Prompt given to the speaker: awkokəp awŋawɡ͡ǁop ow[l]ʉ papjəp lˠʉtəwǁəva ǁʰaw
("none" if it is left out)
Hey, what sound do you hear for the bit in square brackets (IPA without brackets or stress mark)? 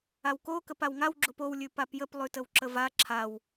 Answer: lʲ